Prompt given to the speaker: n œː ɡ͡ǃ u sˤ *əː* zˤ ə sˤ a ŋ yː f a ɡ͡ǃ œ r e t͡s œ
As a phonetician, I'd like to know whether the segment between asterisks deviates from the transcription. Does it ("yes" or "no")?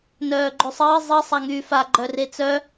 no